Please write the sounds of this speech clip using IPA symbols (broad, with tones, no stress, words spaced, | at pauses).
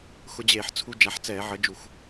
xʊ˧d͡ʑeː˧˩˧ħt͡sʰu˧ d͡ʒa˨˥ħt͡sɛː˧˩˧ʕə˨˥d͡ʒu˧˩˧x